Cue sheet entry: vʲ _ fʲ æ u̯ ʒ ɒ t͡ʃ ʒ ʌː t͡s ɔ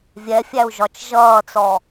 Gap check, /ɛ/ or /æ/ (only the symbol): ɛ